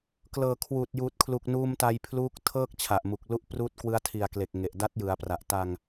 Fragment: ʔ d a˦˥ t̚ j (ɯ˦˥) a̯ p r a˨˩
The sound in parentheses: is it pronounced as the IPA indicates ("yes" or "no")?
no